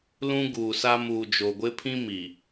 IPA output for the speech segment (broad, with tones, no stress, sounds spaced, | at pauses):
l ũ˦ ɡ uː˨ s a˦ m uː˨ d͡ʒ o˨ ɡʷ ɪ˦ pʰ ĩ˦ m i˨